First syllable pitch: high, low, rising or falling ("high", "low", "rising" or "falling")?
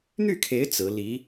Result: falling